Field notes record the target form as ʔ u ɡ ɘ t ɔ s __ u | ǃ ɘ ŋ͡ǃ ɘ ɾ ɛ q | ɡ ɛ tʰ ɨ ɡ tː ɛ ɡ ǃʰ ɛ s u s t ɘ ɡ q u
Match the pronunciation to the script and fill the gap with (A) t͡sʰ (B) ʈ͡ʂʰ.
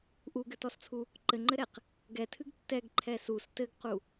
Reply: A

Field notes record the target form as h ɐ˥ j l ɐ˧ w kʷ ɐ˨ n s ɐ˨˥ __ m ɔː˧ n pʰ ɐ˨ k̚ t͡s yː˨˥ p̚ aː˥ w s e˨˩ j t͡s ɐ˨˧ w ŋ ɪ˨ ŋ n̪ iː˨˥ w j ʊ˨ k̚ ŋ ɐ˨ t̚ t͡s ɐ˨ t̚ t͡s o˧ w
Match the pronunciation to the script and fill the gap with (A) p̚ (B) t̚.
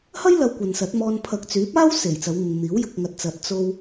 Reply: B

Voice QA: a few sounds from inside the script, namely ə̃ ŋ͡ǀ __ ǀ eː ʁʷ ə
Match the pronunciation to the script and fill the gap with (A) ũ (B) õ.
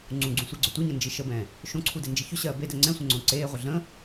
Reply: B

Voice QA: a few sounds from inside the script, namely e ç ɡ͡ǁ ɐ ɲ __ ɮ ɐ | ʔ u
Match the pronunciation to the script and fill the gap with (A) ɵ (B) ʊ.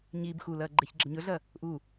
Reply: A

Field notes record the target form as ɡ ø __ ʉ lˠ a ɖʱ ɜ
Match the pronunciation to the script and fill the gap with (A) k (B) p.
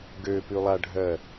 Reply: B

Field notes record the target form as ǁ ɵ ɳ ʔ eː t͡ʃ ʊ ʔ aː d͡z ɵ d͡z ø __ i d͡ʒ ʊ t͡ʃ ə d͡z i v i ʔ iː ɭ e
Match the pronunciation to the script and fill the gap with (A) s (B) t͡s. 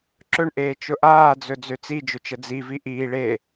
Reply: B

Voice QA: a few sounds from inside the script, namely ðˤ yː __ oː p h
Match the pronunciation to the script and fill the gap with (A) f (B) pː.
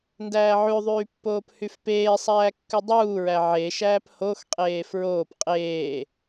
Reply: B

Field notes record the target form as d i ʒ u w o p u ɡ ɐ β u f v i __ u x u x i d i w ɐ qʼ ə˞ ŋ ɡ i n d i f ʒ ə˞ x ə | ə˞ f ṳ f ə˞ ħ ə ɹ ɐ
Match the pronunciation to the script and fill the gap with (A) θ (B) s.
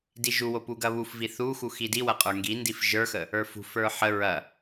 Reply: A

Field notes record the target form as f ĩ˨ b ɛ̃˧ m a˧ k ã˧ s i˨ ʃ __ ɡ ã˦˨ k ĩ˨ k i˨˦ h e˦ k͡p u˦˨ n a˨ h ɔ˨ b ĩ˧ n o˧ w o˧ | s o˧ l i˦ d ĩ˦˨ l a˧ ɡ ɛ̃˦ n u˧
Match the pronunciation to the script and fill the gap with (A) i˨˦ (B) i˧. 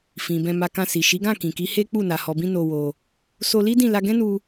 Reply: A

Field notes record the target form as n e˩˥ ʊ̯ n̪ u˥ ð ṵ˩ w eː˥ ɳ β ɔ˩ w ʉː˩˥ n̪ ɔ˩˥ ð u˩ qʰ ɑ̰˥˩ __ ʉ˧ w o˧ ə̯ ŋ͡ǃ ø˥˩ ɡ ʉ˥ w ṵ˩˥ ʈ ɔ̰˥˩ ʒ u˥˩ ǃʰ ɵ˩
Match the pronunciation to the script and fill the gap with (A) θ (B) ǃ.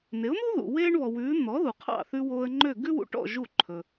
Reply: A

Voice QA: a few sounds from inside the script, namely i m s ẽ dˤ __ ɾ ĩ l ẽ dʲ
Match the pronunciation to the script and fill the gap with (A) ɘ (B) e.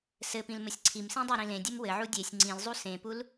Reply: B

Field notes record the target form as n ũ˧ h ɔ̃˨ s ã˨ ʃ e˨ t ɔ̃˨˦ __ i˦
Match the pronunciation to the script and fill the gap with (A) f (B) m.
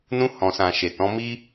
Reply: B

